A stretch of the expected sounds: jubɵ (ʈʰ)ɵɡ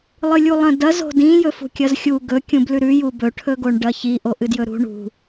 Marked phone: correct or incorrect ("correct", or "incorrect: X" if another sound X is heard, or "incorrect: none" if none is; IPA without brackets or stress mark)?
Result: correct